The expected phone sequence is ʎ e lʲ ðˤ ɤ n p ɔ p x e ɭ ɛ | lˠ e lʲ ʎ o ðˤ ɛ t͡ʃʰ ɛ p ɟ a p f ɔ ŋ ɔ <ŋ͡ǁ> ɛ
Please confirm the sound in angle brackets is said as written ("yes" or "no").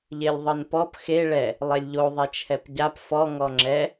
yes